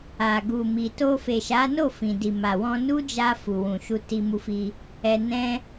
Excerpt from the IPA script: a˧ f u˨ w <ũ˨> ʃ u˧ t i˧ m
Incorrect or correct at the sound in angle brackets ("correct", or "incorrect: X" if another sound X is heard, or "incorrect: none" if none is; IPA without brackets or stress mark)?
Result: correct